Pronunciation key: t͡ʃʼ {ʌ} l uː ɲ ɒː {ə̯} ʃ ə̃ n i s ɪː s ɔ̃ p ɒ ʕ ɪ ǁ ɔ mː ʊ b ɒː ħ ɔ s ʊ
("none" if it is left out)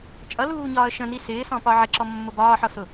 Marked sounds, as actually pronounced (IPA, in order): ʌ, ə̯

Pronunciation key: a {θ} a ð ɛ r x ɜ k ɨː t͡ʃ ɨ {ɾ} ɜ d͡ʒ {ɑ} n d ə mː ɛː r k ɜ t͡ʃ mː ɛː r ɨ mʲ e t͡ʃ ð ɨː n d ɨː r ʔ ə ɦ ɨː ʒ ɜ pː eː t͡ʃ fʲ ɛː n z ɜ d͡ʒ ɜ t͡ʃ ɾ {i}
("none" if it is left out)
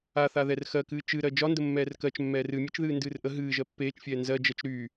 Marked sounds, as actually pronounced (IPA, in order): θ, ɾ, ɒ, y

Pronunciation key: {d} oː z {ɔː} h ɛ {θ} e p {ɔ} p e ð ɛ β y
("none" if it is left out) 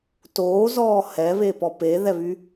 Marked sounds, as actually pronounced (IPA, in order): t, ɔː, β, ɔ

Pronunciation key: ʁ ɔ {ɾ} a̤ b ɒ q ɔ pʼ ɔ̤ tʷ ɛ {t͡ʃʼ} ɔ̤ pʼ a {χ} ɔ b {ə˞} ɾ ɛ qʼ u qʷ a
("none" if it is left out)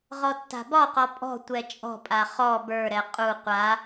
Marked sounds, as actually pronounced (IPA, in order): tː, t͡ʃʼ, χ, ə˞

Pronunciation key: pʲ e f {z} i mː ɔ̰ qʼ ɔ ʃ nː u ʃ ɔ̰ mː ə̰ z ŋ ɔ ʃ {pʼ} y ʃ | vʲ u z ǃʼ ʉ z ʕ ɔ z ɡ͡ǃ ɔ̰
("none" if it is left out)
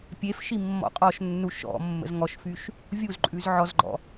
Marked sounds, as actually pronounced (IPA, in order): ʃ, f

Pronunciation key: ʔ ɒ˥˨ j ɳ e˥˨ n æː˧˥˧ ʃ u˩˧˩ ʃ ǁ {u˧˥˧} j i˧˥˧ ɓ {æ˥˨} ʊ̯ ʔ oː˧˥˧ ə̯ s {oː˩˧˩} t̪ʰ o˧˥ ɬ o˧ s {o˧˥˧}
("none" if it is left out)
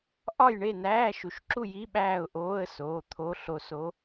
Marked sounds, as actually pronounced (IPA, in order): u˥˨, æː˥˨, oː˩˧˩, o˧˥

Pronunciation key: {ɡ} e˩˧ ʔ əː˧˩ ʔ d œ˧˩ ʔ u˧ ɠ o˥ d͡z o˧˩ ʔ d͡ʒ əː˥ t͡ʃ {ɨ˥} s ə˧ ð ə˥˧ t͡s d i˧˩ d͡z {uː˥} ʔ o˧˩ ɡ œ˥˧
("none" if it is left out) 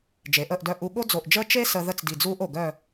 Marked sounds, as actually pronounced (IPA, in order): d͡ʒ, e˥, uː˥

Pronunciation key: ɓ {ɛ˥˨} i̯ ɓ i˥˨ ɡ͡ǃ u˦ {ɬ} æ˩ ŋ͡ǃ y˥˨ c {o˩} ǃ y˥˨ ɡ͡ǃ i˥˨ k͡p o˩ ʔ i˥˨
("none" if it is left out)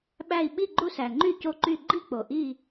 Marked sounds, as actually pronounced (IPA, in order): æ˥˨, s, o˦

